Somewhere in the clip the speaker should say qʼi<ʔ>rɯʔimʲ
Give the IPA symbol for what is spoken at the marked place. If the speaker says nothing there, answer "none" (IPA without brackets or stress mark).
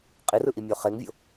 none